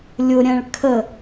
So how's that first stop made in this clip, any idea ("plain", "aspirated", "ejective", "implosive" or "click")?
aspirated